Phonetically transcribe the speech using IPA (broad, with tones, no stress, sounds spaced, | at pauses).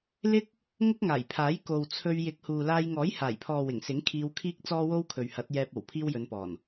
l ɪ˥ k̚ | ŋ ʊ˥ k̚ ŋ aː˨˩ j pʰ aː˨˥ j k o˨ w t͡sʰ ɵ˧ ɥ j ɪ˨˥ k̚ h uː˨ l aː˧ j ŋ ɔː˨˥ j h aː˨˩ j pʰ ɔː˨ w ɪ˨˩ ŋ s ɪ˨˥ ŋ kʰ iː˧ w kʰ iː˥ k̚ t͡s ɔː˥ w o˥ w kʰ ɵ˨ ɥ h ɐ˨˥ t̚ j ɛː˧ p̚ o˨˩ w pʰ iː˥ w j ɵ˨˧ n p ɔː˨˩ n